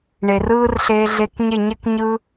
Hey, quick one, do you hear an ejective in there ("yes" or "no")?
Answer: no